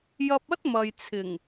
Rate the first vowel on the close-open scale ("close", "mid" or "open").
open